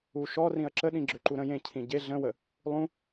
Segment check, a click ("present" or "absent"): present